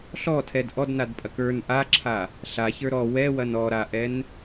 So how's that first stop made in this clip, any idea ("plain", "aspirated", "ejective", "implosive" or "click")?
aspirated